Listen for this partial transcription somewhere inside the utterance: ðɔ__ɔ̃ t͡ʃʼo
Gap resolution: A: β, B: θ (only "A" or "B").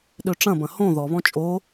A